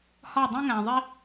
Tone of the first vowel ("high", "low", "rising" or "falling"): falling